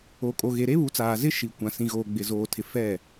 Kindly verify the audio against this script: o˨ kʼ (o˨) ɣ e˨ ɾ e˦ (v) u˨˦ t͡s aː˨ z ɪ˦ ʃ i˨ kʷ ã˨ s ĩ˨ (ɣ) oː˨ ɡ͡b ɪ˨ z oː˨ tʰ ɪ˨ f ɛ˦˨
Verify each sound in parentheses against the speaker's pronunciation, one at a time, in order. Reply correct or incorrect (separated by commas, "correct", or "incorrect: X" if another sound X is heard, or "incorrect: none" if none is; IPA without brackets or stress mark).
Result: correct, incorrect: β, correct